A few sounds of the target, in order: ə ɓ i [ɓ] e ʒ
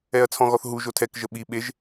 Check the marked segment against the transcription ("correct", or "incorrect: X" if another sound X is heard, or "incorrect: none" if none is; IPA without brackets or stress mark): correct